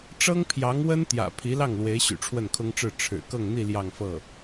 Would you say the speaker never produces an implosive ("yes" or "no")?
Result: yes